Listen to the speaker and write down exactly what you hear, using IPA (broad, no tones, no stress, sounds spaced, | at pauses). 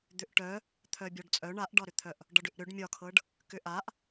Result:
d̪ ʏ ʔ ʈ œ | t̪ʰ œ bʲ ɒ ɖ t͡sʼ œ ɳ a ʔ ɖ ɒ ɾ ʏ t̪ʰ œ ʔ | ɖ ɒ ɖ ʏ ʔ ɾ ʏ ɖ mʲ ɒ kʰ ɤ ɖ | k ʏ ʔ a ʔ